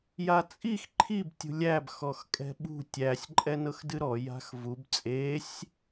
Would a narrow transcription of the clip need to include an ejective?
yes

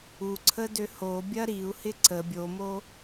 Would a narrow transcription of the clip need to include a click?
yes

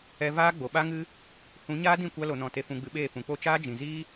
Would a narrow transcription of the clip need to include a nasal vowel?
yes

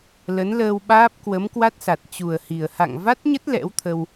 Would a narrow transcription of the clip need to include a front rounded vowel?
no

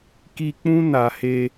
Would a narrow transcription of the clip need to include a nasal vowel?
yes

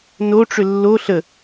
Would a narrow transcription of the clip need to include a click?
no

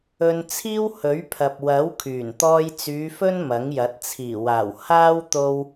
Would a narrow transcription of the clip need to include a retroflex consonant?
no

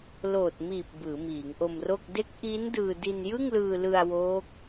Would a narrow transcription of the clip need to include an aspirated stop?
no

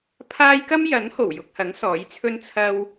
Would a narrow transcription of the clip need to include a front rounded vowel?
no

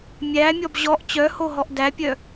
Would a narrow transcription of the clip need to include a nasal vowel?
no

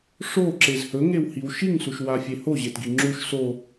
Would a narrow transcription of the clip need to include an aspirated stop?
no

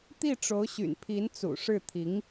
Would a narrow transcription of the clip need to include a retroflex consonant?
yes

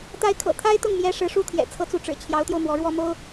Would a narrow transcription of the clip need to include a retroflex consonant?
yes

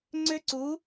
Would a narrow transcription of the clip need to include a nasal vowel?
no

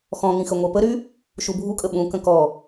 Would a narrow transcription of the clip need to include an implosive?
yes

